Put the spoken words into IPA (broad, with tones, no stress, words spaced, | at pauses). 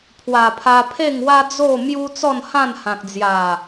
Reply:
pʰwa˨˩pʰa˧ pʰe˥˧ŋwa˦ d͡zo˥˧mju˦ t͡sɔ˥˧nhã˥˧nhã˨k̚d͡zja˨˩